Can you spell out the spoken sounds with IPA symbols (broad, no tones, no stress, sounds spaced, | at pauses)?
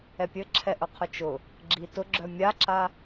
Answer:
ɛ pʲ ɘ ǁʰ ɛ ʔ ʊ qʰ ʊ t͡ʃ ʊ | ɡ͡ǁ i t ʊ ɡ͡ǁ œ mʲ a ǁ a